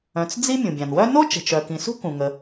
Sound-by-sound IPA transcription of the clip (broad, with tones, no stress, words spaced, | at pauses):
œ̃˩t͡sd͡zi˦ mʲũ˩bʲã˩n wœ˥ no˥ t͡ʃə̤˩t͡ʃœ˩kĩ˩sṳ˥ kũ˩ŋə˩